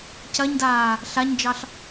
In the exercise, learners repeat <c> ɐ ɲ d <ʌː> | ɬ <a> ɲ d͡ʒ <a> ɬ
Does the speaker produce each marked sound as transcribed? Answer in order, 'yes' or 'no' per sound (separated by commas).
yes, no, yes, no